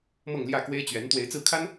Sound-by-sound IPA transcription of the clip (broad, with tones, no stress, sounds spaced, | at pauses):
m ɤ˥˨ ŋ l j ä˥˨ k w e˦ ɪ̯ t͡ɕ ɥ ɛ˨˦ n t̪ w e˨˦ ɪ̯ t͡s ɹ̩˥˨ kʰ a˦ n